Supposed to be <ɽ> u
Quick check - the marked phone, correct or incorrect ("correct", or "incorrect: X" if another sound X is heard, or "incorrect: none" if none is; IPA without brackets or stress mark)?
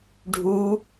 incorrect: ɖʱ